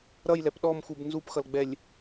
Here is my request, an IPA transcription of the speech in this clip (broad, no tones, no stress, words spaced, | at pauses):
ɾʌjlɛp ɗɔmxub nzupxʌlɡ͡bɛlʲ